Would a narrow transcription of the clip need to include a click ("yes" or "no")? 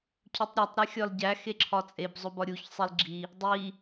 yes